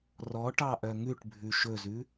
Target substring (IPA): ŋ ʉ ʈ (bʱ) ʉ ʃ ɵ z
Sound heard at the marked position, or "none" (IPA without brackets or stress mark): bʱ